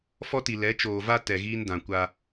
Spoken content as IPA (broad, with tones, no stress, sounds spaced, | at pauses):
f ɔ˦ t i˨ l ɛ˨˦ t͡ʃ oː˨ v a˦ t ɛ˨ ɣ iː˦ n d ã˨ kʷ a˦